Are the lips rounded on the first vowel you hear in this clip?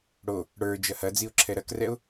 yes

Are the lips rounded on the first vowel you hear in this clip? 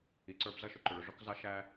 no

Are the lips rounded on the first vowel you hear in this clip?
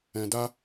no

